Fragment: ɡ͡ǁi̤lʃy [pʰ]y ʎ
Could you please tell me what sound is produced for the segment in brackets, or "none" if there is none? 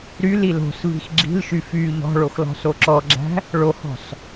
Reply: f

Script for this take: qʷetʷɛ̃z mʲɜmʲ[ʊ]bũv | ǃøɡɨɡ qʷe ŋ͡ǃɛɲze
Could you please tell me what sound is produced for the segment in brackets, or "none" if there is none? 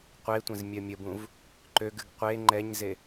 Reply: ə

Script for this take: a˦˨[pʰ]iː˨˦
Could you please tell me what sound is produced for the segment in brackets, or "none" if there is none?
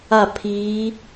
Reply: pʰ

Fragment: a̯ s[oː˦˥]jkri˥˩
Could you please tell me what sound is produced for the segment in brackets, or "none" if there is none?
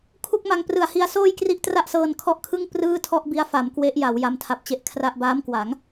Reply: oː˥˩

